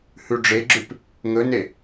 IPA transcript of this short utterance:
hʉɖ͡ʐeɡ͡ǁʉp | ŋɵne

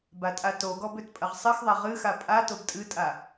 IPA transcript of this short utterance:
batʼatoɡɔb øtpʼɐʁsˤɨxðˤa ʁɨxa pʼa tobtʼɨtʼa

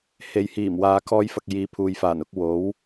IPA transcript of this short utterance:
he˨jhiː˨˩mwaː˨ kʰɔː˧jfɐ˨k̚ jiː˨˧pʰuː˨jfaː˨˩n ʊ˧k̚ wo˨˥w

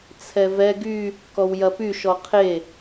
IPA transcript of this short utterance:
t͡sʰɛvɛ ɡy | kɔwjɐpy ʃɔqʰe

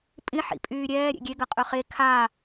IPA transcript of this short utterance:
pʼĩ ħḭpʼyːɾʲɛː ɾʲḛɡʲeɡɐ qʼɵχe kʰa

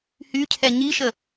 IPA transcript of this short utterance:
hycʰɛ ɲiʃə

